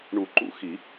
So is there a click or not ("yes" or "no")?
yes